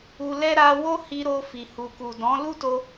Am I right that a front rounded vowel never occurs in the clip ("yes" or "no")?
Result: yes